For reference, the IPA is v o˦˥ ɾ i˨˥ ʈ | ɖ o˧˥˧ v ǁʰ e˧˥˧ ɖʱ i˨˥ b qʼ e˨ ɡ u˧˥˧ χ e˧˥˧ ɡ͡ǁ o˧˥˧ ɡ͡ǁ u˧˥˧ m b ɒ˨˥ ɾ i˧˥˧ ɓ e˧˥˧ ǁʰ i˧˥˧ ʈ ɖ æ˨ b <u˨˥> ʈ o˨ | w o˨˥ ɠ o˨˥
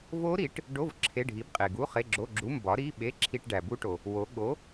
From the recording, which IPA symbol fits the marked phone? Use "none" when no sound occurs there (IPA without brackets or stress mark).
u˦˥